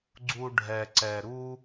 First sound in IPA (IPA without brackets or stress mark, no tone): ɡ͡ǀ